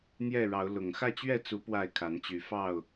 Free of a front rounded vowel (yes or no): no